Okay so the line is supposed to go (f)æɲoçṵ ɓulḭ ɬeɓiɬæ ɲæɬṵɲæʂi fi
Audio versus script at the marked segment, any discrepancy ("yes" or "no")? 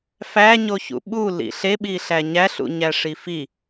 no